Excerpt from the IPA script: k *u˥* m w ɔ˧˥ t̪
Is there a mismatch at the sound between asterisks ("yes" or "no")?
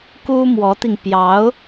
no